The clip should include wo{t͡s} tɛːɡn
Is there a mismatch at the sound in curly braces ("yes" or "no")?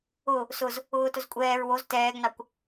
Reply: yes